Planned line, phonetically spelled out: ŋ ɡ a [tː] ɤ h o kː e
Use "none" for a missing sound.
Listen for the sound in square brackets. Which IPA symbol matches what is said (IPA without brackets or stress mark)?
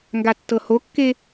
tː